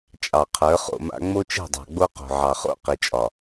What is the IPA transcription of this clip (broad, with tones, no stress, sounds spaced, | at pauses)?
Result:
t͡ʃʼ ɑ˨ qʰ ə˞˨˦ χ o̰˨ m a̰˦ ŋ͡m o˦ t͡ʃ ɛ̤˦˨ dˤ ɑ̤˨ ɡ͡b o˦ q o̤˨ ʕ ɑ˨ χ o̰˦˨ q i˨ t͡ʃʼ ɒ˨